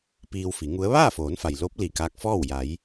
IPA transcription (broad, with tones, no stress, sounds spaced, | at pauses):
p iː˧ w f i˩˧ ŋ u˧˥ ə̯ ʋ aː˥˨ f oː˩˧ n f a˩ j l o˧˥ p̚ l i˧˩ k aː˧˥ k̚ f ɔː˥˨ w j a˩˧ j